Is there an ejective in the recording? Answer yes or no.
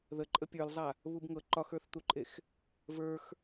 yes